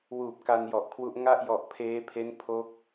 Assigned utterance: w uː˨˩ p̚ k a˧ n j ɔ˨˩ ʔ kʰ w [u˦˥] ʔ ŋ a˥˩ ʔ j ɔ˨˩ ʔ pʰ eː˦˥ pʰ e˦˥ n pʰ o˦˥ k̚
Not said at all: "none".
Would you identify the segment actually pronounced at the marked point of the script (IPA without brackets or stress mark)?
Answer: u˦˥